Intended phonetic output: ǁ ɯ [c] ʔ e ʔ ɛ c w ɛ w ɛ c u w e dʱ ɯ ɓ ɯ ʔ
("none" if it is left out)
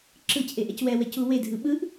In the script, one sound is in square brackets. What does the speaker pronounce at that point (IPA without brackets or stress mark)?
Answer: c